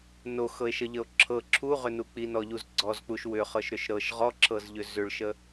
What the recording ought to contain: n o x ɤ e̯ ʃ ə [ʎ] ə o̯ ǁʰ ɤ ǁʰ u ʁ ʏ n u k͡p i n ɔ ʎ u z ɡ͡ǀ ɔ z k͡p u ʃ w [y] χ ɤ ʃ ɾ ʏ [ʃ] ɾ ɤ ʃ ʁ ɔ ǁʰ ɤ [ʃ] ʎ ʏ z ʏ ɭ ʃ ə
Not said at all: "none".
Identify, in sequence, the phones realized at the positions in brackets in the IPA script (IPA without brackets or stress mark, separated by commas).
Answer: ʎ, ʏ, ʃ, z